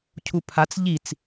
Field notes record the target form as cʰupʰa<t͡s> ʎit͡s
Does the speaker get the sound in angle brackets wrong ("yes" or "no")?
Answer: no